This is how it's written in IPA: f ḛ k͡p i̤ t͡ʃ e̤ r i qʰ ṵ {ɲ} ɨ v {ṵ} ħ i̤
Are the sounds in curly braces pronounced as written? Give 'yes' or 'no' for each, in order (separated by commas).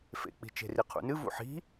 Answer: no, yes